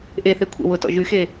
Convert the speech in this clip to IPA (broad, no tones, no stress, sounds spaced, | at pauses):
ʔ e θ e kʷʰ ḛ w ʊ t ɔ̰ ʒ y x e